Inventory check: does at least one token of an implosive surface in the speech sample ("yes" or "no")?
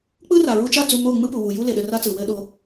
yes